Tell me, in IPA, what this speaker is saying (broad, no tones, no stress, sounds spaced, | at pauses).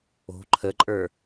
o̤ ǃʰ ə ǃʼ ə˞